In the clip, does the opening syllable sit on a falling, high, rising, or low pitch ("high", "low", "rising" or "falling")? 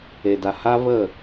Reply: low